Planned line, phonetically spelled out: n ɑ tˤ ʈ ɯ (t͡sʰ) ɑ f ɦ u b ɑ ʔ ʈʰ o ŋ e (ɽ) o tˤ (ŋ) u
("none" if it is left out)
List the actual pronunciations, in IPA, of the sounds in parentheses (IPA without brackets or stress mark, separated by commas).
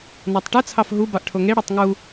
t͡sʰ, ɽ, ŋ